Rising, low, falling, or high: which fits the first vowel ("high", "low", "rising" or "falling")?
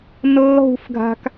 high